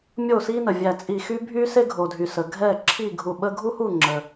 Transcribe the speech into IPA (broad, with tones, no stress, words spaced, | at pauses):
mʲo˥˨si˥nə˩vʲæ˧˩ t͡sʼi˧˩xy˥bʱy˥ se˥ɡʱo˩dʱy˩ sə˩ɡʱɛ˥˨ ǁʰi˥˨ɡʱu˧˩ɓə˥ ɡʱu˥hu˥˨ŋ͡ǁə˩